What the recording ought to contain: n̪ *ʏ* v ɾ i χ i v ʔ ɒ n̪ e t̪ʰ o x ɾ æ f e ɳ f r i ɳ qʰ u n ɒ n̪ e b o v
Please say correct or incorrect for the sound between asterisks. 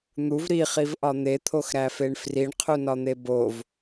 incorrect